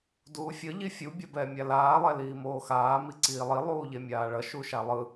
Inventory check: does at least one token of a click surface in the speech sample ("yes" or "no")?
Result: yes